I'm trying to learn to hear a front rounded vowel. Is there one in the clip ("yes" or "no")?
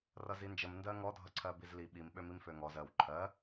yes